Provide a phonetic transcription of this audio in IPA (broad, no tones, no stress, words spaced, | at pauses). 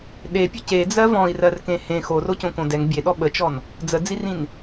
ɗepʲə ced͡zɜ vɔ̃i̯rɜrkẽ hẽ xorocõkõ dɛŋ bʲeɗɔ ɓət͡ʃɔn | d͡zəd͡zirĩn